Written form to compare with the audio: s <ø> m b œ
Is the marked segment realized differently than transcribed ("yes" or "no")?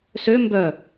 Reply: no